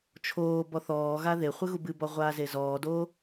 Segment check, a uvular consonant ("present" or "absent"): present